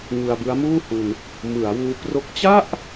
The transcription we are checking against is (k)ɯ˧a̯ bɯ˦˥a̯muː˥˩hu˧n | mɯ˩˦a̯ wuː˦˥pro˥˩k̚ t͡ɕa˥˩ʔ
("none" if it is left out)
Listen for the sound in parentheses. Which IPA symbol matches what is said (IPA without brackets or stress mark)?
ŋ